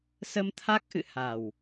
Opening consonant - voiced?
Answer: no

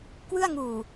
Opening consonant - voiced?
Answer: no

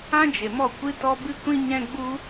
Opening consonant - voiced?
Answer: yes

